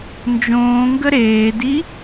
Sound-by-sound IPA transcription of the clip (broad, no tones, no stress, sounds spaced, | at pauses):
n d͡ʒ õː ŋ ɡ ə ɾ eː d i